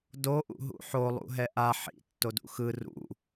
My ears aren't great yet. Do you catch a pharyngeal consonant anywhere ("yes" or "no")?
yes